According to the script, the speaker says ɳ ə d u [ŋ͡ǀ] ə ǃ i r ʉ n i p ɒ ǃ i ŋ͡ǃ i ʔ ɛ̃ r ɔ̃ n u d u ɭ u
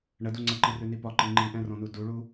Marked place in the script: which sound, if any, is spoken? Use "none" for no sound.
ŋ͡ǀ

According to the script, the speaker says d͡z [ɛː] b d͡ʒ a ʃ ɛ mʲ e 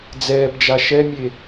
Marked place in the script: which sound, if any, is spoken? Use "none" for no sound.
ɛː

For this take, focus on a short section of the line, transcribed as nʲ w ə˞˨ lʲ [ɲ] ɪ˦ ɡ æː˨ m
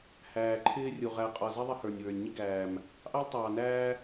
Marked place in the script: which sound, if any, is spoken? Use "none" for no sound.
ɲ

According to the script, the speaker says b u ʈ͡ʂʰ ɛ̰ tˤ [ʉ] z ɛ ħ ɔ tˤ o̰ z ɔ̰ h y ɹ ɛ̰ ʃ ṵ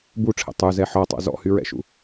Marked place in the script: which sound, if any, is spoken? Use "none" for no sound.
ʉ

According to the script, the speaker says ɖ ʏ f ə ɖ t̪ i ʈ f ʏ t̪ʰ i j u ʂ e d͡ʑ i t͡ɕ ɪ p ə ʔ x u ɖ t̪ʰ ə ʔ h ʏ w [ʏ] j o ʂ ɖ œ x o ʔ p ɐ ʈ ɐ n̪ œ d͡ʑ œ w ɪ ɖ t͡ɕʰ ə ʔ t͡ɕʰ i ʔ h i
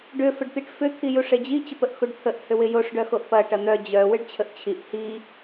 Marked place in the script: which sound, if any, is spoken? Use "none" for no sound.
ɪ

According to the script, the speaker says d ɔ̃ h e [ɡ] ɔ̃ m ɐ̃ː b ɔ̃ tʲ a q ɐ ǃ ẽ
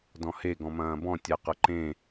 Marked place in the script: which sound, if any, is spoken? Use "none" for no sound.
ɡ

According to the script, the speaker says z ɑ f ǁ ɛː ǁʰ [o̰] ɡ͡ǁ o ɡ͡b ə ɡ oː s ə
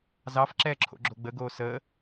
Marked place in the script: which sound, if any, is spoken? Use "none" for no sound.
o̰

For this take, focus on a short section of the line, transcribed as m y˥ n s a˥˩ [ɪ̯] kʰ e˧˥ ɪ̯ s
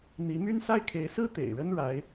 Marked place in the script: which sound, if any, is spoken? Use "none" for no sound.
ɪ̯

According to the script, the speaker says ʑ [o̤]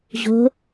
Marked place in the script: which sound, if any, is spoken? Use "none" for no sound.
o̤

